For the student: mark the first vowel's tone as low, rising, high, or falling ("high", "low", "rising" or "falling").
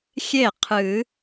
falling